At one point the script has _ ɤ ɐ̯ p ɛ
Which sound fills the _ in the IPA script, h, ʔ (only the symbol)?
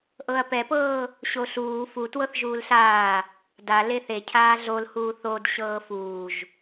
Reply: ʔ